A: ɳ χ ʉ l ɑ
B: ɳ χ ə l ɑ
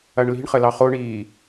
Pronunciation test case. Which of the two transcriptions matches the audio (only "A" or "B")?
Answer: B